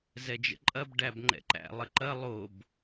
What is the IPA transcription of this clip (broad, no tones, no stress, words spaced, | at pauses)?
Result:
zɛd͡ʒə̰ǃʼɐb ɖæbŋ͡ǃɛ̰ǃæ̰ lˠəǃɐ lˠob